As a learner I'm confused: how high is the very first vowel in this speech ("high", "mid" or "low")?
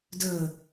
mid